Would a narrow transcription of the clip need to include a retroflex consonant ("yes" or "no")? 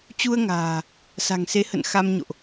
no